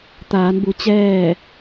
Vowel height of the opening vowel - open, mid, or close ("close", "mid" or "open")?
open